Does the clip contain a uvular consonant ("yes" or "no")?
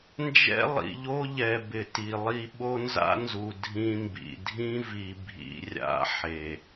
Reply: no